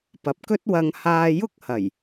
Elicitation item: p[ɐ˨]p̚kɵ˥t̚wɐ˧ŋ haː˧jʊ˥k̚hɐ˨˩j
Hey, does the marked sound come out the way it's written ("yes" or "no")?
yes